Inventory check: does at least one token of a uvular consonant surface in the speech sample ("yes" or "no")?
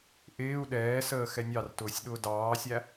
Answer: no